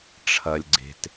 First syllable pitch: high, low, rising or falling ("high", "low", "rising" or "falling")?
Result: low